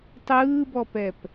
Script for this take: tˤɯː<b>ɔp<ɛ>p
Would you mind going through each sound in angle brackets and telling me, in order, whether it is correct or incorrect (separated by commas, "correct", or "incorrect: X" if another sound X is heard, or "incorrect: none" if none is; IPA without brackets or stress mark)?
correct, correct